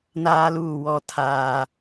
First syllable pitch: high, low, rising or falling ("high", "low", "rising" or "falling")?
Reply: high